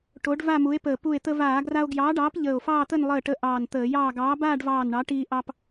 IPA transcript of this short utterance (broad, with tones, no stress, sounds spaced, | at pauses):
ʈ o˨˥ ɖ v a˥˧ m u˨˥ e̯ p əː˧˩ p u˧˩ e̯ t̪ ə˧ v aː˧˩˧ ɡ r a˧ o̯ ɡ j ɑː˨˥ ɖ ɑː˨˥ p ʎ əː˧˩ o̯ f ɑː˥˧ t̪ ə˥˧ n lˠ əː˧˩ ʈ ə˨˥ ʔ ɑː˧˩ n t̪ əː˧˩˧ j ɑː˥˧ ɡ ɑː˨˥ b aː˥˧ ɖ v ɑː˧˩ n ɳ ɑ˨˥ ʈ iː˧ ʔ ɑ˧ p